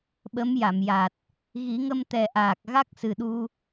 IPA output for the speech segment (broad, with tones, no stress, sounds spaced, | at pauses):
ɓ ə˧˥ m j a˨˩˨ m j a˨˩ t̚ | ɣ i˨˩˦ ŋ ə˧ m t̪ ɛ˨˩ ʔ aː˨˩ k̚ ɣ a˦˥ k̚ s ɨ˨˩ ɗ u˧